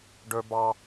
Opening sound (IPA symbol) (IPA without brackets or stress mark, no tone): ɖ